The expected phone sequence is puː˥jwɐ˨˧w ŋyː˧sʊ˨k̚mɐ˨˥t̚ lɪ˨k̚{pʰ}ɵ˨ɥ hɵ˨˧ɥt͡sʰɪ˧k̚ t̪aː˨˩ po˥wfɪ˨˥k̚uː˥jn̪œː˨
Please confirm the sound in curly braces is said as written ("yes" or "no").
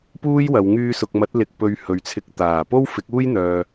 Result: no